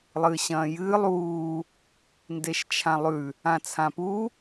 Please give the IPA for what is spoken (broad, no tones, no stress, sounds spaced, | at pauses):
lˠ ɨː ɕ ɐ̃ː j ɨː lˠ uː | n d e ʃ t͡ʃʰ ã lˠ ʉ | ã t͡sʰ ã p u